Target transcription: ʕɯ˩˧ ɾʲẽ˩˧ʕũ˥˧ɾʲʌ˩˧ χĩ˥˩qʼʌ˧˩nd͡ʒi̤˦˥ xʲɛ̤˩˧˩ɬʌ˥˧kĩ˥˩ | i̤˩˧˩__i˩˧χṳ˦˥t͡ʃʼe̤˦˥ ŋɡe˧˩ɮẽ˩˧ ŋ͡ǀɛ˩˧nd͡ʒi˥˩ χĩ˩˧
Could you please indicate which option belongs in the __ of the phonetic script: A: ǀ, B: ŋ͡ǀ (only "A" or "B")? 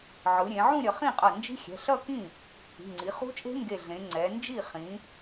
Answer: B